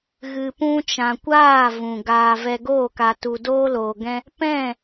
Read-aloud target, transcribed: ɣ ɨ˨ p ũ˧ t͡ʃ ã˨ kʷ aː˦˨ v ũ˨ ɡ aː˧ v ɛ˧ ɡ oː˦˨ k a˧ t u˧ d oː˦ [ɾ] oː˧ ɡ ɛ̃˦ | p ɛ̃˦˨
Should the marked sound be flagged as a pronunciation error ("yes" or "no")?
yes